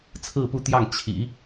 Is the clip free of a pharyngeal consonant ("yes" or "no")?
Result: yes